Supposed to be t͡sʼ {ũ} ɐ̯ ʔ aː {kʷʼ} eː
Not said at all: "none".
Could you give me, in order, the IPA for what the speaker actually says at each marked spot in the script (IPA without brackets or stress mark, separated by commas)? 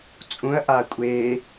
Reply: ũ, kʷʼ